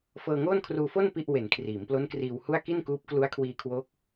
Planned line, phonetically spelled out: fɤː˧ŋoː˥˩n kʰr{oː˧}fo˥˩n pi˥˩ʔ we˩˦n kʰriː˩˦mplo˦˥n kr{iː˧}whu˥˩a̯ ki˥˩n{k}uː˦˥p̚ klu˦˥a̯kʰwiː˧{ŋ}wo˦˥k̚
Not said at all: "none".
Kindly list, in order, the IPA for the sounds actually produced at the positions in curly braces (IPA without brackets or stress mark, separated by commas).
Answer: uː˧, iː˧, k, kʰ